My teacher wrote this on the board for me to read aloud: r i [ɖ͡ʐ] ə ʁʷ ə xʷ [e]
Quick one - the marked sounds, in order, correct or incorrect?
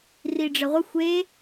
correct, correct

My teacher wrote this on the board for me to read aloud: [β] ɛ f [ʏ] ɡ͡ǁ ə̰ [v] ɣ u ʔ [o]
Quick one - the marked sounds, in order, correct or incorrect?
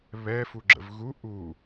correct, incorrect, correct, incorrect

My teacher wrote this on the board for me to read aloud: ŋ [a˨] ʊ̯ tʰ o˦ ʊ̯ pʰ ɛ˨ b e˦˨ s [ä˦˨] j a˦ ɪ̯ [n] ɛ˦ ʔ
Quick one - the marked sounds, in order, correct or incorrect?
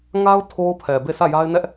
incorrect, correct, correct

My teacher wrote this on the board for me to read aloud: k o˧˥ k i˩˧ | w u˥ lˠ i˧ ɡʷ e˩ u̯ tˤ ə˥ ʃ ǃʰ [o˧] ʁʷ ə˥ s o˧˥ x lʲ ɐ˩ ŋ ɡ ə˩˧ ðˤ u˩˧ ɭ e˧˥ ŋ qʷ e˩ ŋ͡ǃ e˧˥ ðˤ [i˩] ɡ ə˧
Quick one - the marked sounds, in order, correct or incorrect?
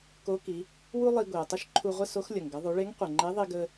incorrect, incorrect

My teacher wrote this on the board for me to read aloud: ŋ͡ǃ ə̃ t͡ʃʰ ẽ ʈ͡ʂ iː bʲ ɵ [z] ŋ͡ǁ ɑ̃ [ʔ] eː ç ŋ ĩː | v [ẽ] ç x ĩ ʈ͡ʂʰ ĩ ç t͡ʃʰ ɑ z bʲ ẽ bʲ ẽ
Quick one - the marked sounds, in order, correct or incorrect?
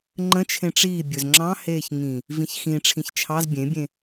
correct, incorrect, incorrect

